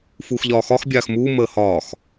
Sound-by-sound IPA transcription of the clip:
fuːxʎɒːxɒx bʲaːxmuː məːhɒːx

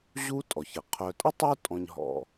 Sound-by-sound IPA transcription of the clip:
ʑu˥tʼɔ˩çə˩ qʰœ˨tʼə˥tˤu˦tʼɔ̃˨ɲ ɦɔ̰˨

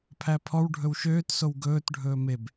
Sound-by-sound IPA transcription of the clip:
pʰæpʰɔw ɖʱɵwʃøːtsow ɡɵːtɖʱɵː meb

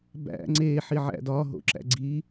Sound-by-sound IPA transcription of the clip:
bæ̰ ŋ͡ǀeːħiʕæ̰ dɒːɦo̰ǁæ̰ ɡ͡ǀi

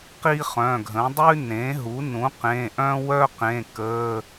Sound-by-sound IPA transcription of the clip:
qi˥χœ̃˩˧˩ɡʱə̃˩˥ dˤʉ˥ nẽ˩˥ɦu˩˥nũ˩˥ qẽ˩˧˩ ʔœ̃˥wœ˥qẽ˩˧˩ kə˩˧˩

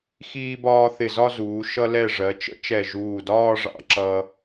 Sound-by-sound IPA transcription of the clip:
xiː˧bɒː˧ θɪ˧˩zɒ˥˧zuː˩˧ ʃʌ˧lɛ˧˩ ʐɜ˩˧t͡ʃə̰˥ t͡ʃɛ˧˩ʒuː˧˩dɒː˥˧ʐɑ̰˧ ǁʌ˧

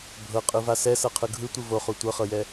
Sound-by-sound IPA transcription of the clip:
bʱɤ qʼɯvasɛ sɤqʰɯɡʱɯ tʷɯvoχu tʷɤχɤjɛ

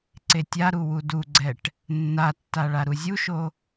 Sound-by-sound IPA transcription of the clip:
ǀetʲaɾu wuduɡ͡ǀɛʈ | nːatːa ɭaɾuzʲuʃo

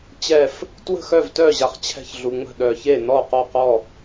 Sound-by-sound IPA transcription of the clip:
t͡ɕɛ˥˩f | twə̤˥˩xœ˥˩vtœ˥˩ʑa˨χ t͡ɕʰɛ̤˥˩çɮu˨ŋ͡mə̤˥˩ ɗœ˨çe˥˩ nɔ˥˩qɔ˥˩qɔ˥˩

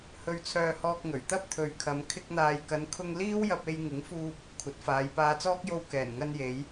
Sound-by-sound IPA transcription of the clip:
hɵ˧ɥt͡sʰœː˧hɔː˧k̚ŋɵ˨˩ɥ t̪ɐ˥p̚t̪ʰɵ˨ɥkʰɐ˨˧m kʰɪ˧k̚n̪aː˨jkɐ˨˧nkʰʊ˧ŋ liː˥wjɐ˧p̚e˧j ŋɪ˨˥ŋfuː˧p̚ | kʷʰɐ˨˥t̚faː˨˧jpaː˧t͡sɔː˥k̚ jo˧w kɛː˨˩nŋɐ˧n je˨˧j

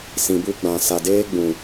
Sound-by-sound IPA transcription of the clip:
sĩ˨bu˧ɡ͡bã˨ sa˨deː˧ ɡ͡bũ˨

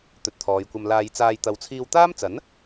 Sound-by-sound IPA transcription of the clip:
t̪ɵ˨˥t̚t̪ʰɔː˨jkʷɐ˧m laː˧jt͡saː˧j t̪ɐ˨˧wt͡sʰiː˧wt̪aː˥mt͡sɐ˨˥n

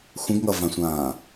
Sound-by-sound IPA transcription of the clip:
xʷə̃ɡŋʌvãsʷãː

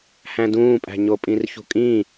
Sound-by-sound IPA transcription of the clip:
hæ̃dũːpʼæ̤ ɲopʼĩrçṳkʼĩ

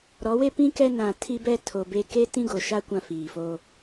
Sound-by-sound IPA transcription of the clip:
ɾɔ˨˦we˦pĩ˦ kɛ˦ nã˨ tʰi˦bɛ˦tʰo˨be˦ ke˦tĩ˦ɡo˨ʃa˦ kʷã˦fiː˨foː˦

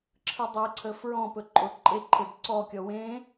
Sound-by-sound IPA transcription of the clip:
ǁʰɯdˤɛǀʰə fɹɔ̃pɵ ǃʼʊ ǃʼeǃʰeb ǀɔkʲɔ wẽ

